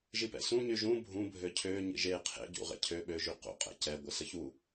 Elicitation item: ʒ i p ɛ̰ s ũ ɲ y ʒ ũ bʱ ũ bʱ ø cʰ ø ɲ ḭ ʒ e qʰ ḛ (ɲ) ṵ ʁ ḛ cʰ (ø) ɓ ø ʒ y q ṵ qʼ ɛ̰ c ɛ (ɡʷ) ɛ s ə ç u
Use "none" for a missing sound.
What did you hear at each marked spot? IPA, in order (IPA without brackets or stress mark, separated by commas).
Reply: ɟ, ø, ɡʷ